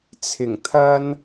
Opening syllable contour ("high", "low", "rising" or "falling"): low